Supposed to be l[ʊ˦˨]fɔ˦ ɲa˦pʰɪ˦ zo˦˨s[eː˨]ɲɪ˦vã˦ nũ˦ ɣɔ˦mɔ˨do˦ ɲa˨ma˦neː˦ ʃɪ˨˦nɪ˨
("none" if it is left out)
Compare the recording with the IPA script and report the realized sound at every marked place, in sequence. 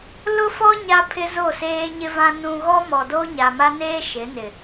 ʊ˦, eː˦

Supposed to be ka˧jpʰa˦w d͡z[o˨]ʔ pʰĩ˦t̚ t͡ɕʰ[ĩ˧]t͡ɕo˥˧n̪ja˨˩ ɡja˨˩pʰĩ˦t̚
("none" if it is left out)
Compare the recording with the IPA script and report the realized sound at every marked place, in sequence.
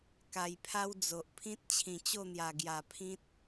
o˨, ĩ˨˩

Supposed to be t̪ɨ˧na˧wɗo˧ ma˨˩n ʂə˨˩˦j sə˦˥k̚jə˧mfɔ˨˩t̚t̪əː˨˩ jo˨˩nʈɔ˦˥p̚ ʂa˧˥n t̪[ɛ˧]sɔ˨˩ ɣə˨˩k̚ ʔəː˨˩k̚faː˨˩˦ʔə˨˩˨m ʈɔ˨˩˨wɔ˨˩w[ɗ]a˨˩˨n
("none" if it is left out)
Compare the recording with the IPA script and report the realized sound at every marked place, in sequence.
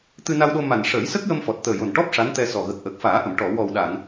ɛ˧, ɗ

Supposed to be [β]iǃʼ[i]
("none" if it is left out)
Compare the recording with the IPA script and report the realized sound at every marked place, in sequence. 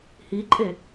h, e

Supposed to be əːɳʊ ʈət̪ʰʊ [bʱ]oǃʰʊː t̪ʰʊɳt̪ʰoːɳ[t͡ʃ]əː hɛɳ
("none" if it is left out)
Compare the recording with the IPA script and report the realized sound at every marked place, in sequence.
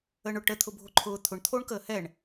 bʱ, k

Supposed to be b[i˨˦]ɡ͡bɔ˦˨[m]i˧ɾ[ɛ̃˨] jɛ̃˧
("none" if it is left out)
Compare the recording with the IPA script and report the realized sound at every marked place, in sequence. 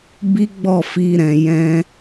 i˦, f, ɛ̃˨

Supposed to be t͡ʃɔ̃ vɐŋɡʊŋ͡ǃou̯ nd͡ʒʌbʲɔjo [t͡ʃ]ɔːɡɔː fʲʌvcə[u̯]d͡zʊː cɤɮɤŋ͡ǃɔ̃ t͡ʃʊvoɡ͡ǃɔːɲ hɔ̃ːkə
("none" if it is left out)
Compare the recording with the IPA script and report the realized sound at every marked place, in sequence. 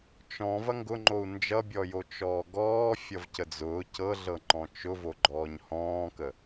t͡ʃ, none

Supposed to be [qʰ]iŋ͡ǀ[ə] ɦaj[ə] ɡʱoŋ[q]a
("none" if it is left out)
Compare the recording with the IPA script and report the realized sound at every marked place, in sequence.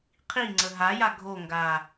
qʰ, ə, a, ɡ

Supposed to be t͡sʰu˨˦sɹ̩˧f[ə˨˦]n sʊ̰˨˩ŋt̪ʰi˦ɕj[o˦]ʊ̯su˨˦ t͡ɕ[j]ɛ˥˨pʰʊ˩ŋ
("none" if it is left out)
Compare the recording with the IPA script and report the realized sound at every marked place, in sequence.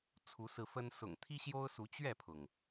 ə˦, o˦, ɥ

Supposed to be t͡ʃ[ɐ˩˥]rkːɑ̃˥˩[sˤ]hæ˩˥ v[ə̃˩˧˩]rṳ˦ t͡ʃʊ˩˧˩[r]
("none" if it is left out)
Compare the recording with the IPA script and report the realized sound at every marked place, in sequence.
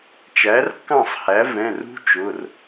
æ˩˥, sˤ, ɛ̃˩˧˩, r

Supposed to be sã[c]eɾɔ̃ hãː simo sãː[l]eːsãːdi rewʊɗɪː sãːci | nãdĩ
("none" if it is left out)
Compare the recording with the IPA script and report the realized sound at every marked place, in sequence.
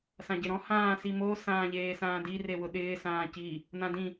ɟ, ʎ

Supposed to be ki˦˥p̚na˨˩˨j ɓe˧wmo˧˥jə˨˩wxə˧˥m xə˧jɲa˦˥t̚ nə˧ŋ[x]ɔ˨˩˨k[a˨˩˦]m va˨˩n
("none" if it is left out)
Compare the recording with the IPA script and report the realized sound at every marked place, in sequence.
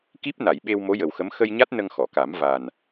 x, a˨˩˦

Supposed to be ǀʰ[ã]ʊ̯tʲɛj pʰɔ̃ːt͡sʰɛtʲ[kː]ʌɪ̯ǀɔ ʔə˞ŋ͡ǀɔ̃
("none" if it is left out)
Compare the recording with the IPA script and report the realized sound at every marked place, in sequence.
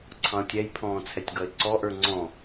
ɑ̃, ɡ

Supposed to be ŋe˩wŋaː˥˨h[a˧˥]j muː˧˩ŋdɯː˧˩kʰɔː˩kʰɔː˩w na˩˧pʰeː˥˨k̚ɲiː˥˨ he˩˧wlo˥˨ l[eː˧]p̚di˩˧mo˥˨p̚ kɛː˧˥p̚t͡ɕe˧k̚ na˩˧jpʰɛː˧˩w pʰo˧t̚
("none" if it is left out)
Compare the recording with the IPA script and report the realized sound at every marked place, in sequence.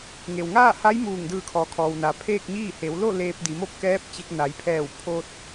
a˧˥, eː˧

